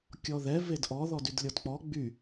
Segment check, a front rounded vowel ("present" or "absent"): present